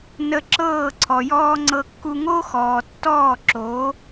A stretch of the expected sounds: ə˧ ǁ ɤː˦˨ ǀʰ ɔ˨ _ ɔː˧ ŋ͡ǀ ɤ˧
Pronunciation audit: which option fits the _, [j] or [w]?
j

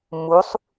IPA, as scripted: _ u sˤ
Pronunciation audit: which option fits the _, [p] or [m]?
m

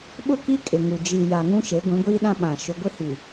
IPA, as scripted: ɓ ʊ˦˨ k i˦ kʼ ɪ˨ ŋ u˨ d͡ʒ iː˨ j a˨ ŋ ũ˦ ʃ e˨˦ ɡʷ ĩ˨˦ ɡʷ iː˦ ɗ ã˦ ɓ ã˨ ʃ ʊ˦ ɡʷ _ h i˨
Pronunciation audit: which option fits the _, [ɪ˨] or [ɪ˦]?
ɪ˦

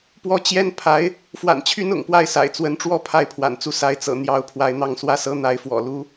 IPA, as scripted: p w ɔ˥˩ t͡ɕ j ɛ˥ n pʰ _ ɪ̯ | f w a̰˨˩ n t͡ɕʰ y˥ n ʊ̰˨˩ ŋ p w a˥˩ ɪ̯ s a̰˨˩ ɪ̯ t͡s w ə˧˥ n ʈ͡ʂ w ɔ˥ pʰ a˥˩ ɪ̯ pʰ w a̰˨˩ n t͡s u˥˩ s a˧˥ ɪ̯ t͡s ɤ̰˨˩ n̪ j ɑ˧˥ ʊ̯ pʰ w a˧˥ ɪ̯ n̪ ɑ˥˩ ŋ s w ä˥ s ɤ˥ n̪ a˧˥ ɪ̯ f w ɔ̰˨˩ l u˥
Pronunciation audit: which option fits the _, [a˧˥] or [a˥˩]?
a˧˥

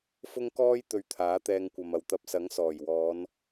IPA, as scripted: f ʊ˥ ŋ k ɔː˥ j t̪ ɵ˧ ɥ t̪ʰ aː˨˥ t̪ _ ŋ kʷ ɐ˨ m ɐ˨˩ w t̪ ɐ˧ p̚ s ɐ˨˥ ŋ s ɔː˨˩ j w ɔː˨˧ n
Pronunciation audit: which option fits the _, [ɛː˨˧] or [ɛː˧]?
ɛː˧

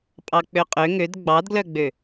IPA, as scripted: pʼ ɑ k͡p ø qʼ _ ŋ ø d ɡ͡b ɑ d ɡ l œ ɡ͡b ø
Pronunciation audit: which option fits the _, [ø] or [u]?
ø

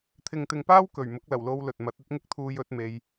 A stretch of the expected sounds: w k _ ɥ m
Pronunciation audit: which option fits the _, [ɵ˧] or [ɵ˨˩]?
ɵ˨˩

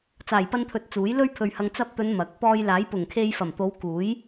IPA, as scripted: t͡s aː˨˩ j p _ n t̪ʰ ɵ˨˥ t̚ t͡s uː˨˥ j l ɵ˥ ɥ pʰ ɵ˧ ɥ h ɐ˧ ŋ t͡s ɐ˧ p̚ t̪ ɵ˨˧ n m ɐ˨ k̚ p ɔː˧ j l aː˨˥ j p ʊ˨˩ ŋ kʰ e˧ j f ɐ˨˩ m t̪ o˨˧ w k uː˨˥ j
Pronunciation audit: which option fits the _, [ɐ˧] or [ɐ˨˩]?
ɐ˧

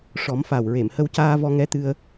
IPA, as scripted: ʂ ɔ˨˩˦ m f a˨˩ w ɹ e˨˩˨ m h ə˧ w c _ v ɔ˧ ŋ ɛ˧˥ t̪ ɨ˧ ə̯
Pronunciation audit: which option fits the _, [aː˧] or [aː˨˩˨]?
aː˧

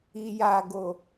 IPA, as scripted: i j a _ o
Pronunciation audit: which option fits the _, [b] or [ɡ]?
ɡ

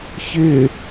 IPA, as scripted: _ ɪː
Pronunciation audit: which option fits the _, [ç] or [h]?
ç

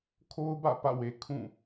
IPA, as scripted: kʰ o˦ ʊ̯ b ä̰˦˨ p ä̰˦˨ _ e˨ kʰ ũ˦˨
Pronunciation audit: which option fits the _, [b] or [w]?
w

